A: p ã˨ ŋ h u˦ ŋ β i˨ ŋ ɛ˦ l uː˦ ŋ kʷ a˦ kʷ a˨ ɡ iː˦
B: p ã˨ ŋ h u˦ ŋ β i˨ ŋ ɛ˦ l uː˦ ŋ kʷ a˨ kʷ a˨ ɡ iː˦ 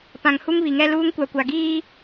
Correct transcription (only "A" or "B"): B